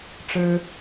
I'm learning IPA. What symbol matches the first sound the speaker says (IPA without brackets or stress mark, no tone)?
ʈ͡ʂ